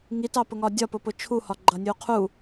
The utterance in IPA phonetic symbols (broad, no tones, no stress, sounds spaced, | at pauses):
ŋ i t ɑ p ʊ ŋ ɒ dʲ ɒ p ʊ p ʊ t͡ʃʰ u h ɒ ɡ͡ǃ ʌ nʲ u qʰ u